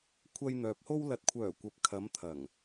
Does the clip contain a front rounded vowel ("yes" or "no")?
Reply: yes